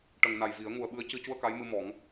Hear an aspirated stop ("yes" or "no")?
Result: no